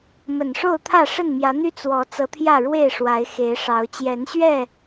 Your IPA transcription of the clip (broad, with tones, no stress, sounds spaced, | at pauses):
m ə˨˩ n ʂ o˥˨ ʊ̯ t̪ʰ ä˥˨ ʂ ə˥˨ n m j ä˨˦ n̪ y˦ t͡s w ɔ˨˦ t͡s ɤ˨˦ t̪ʰ j ä˥˨ ɻ w e˥˨ ɪ̯ ʂ w a˨˦ ɪ̯ x e˨˦ ɪ̯ ʂ ɑ˨˦ ʊ̯ t͡ɕ j ɛ˨˦ n ɕ ɥ ɛ˥˨